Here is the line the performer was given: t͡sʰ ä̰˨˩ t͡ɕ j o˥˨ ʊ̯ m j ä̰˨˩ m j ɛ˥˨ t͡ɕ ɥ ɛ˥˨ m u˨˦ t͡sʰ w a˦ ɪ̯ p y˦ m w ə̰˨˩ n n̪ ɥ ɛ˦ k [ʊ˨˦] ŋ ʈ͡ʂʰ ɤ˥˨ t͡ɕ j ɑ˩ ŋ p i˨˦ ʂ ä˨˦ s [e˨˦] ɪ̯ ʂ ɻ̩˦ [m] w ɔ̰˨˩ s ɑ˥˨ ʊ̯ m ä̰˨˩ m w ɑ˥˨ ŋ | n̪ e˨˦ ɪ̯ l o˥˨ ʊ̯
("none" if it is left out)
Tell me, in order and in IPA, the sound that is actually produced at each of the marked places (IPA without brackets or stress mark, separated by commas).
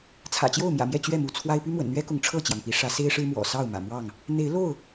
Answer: ʊ˨˦, e˦, m